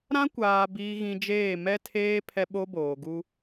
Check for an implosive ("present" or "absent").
present